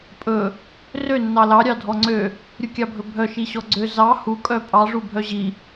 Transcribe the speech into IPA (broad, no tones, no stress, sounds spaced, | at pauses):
pʼ ɵ | r ø nː ɑ l ɑ ɾʲ ɑ dʱ ɔ ŋ͡ǀ ø | ɾʲ u kʲ ɑ bʱ ɵ bʱ œ ʃ i ɕ ɔ ɡ͡ǀ ø z ɑ h u kʼ œ pʼ ɑ ʐ u bʱ œ ʑ i